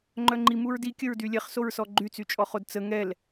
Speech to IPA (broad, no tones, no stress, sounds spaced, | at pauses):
ŋ͡ǃ œ ŋ͡ǃ i m u ɹ d i kʲ ə ɹ d y lʲ ɛ χ s o ɹ s ɔ ɡ͡ǃ y t͡s y t͡ʃʼ ɔ χ o d t͡s ə ŋ ɛ l